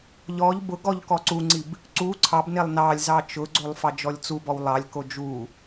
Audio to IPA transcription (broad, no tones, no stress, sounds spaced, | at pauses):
ʎ ɔ ʎ b ʊ ɡ ɔ ʎ k ɔ ǀ u ŋ͡ǀ i b | ǀ u ǀʰ ɑ b n e lˠ n ɑ lʲ z ɑ t͡ʃ ʊ ɡ͡ǀ o lˠ f ɑ d͡ʒ ɔ lʲ t͡s u b ɔ w lˠ ɑ lʲ k o d͡ʒ u